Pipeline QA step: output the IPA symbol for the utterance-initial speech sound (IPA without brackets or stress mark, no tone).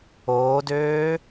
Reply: oː